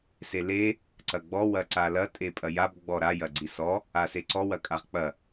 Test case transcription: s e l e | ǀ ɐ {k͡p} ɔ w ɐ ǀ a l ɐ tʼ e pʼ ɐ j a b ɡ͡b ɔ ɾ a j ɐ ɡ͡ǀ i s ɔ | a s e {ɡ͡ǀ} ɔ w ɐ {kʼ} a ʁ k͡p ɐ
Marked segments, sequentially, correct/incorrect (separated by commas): incorrect, incorrect, correct